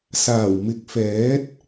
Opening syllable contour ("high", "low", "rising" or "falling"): low